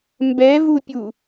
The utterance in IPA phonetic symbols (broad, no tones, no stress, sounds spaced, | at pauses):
m b ɛ v u pʲ u